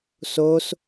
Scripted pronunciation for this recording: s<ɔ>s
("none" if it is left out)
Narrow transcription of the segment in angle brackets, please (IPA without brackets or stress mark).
o